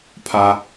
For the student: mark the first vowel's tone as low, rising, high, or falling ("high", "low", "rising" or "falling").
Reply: low